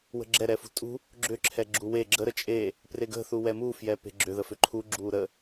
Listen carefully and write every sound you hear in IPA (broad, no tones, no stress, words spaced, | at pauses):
wə̤ɡ͡ǁɛ ɾɛfṳtʼṳ | ɡ͡ǁʏ ǁʰɛɡ͡ǁuwe ɡ͡ǁə ɾət͡ʃʼe | preɡə̤ θuwɛmu fjɛpe̤ɡ͡ǁʏ ðəfʏǃʰu ɡ͡ǁuːɾə